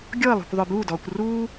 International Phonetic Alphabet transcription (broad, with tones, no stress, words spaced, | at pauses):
ɡʲɔ˥˨ə̯lˠṳ˥˨kʷ ðˤə˞˧buː˥˨dɔː˧kʷ ruː˥